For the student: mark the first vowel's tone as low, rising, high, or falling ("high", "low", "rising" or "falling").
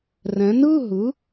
rising